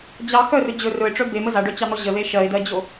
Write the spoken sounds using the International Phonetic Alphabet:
d͡ʑ ɑ x œ r ɵ d͡ʑ ɵ r ɵ ɪ̯ ʈ͡ʂ œ b e m ə z a ɖ œ t͡ɕ ɑ n̪ ɔ ʑ ə ð e ʃ ɜ ɪ̯ d ɜ d͡ʑ o

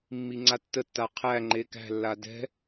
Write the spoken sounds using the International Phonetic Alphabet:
mː i ŋ͡ǀ a tː ə tː a qʰ æ ŋ͡ǃ e k æ̤ lː a d ɛ̤

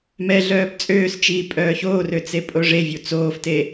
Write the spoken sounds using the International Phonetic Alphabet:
m ɛ ɮ œː b t͡sʼ øː s t͡ʃ iː pʼ œː ç oː r ø t͡s e pʼ o ʐ e vʲ u t͡s oː f t e

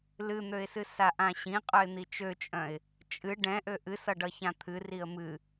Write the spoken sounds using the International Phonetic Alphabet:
l ɨ n̪ ø ɪ̯ s ɨ s a ʔ ã ɕ ĩ qʼ œ ɪ̯ n̪ i t͡ʃ ø t͡ʃʼ œ̃ ɪ̯ | t͡ʃʼ ɨ ɖ ɛ̃ ʔ ø ʔ ɨ s ʌ ɖ ʌ ç ã t̪ʰ ɨ r i ə̯ m ɨ

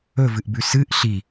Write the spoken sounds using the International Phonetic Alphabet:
ɵ v ɨ ʔ b ʉ s ɨ ʔ ɬ i

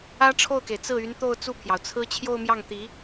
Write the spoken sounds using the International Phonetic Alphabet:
ä˥ ʈ͡ʂʰ o˥˩ ʊ̯ k e˩ ɪ̯ t͡s ɹ̩˥˩ y˧˥ n t̪ o˥˧ ʊ̯ t͡s u˥˩ pʰ j ɑ˩ ʊ̯ t͡sʰ ɹ̩˥ t͡ɕʰ j o˥˧ ʊ̯ m j ɑ˥˩ ŋ t̪ i˧˥

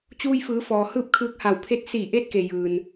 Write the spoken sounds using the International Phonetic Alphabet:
t͡ɕ uː˧ j f ɯː˩˧ f ɔː˩ h ɯː˥˨ p̚ kʰ ɯː˧˥ k̚ h a˧˩ w pʰ e˧˥ t̚ s iː˧˩ ʔ e˧ t̚ k e˩ j ɯː˩ n

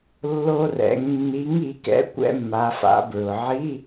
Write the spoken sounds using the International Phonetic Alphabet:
lː o˧ r ɛ̰˩˧ ŋ nː i˨˥ ŋ i˩˧ k ɛ̰˨˥ kʷ ɛ̰˧ mː a˩˧ f a̰˩˧ b ɹ ʊ˩ ʕ i˧˥˧

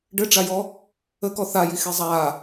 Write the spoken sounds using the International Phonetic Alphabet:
ɖ ɘ ɖ͡ʐ a j ɔ | ə k ɔ θ a j i x e zˤ a

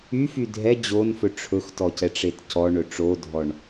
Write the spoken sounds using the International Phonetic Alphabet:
y f y dʱ ɛ d͡ʑ o n f ɵ ʈ͡ʂʰ ɵ x t ɔ c ɛ ʈ͡ʂ e t c ɔ ɳ ɵ ʈ͡ʂ o dʱ ɔ ɳ

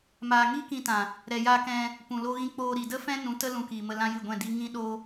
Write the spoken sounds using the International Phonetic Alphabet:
m aː˨ ŋ iː˦ k ĩ˧ t ã˨ | ɾ ɛ˨ j aː˧ k ɛ̃˧ | p ũ˨ l o˧ ɣ ĩ˧ k͡p oː˧ ɾ i˨ d ə˦ f ɛ̃˦ n ũ˨˦ t ə˦ l ũ˧ k iː˨ m ə˧ l ã˦ j ɨ˦˨ ɡʷ ɛ̃˦˨ d i˦ ŋ ĩ˦ ɗ o˦

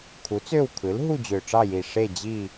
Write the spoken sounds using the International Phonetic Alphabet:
kʰ u˩˥ t͡s ø˦˨ w kʰ ɯ˩˥ l ɦ u˦˨ d͡ʑ ø˨˩ ʈ͡ʂ ɑ˦˨ j i˨˩ ʂ e˦˨ d͡ʑ i˦˨

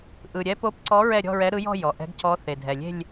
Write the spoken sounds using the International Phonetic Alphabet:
ʔ ɯ˨˩ ɾʲ ɛ˧˥ p o˧˥ p ǀ ɔ˧˥ ɹ ɛ˥˧ ɾʲ ɔ̤˥˧ ɹ ɛ˧˥ ɾ ɯ˧˥ j ɔ̤˥˧ j ɔ˨˩ ʔ ɛ̤˧˥ ɡ cʰ ɔ˧˥ θ e˨˩ dʱ ɛ˨˩ lʲ e̤˥˧ lʲ

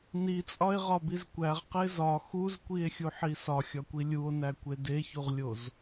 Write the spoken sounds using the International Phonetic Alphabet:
n i t͡sʼ ɒ e̯ ʁ ɒ b i z kʷ æ ʁ q e z ɒ x u z kʷ i e̯ xʲ u ħ i s ɒ xʲ ɒ kʷ i lʲ u o̯ n æ kʷ e d e ç u ʁ lʲ o z

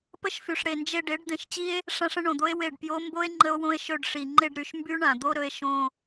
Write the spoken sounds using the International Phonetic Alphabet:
p ə˧ ʃ f y˨ ʂ ɽ e˨ n d͡ʒ e˧ ɖ e˨˦ ɖ d̪ ẽ˧ ʃ t͡ɕ i˦ e̯ | ʂ ã˦ ʂ ə̃˦ ɳ õ˨ d̪ o˦ e̯ w e˦˨ ɖ p j o˦ m b o˦ e̯ ŋ͡ǃ ə˦ o̯ w õ˦ e̯ ʃ ɵ˧ ɖ ʂ i˨ ŋ͡ǃ e˧ ɖ ɾ y˨ ʃ m b y˦ ɳ ã˨ d̪ o˦ ɾ ɵ˦ e̯ ʃ õ˧

